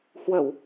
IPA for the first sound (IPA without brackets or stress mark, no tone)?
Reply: h